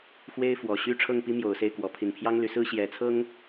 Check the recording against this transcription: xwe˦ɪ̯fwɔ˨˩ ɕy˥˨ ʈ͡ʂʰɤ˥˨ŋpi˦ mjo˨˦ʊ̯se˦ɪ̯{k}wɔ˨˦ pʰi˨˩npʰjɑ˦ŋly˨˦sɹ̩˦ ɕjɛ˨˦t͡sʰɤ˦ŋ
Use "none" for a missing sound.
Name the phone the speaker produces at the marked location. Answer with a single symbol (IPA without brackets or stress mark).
k